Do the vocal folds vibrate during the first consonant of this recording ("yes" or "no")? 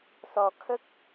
no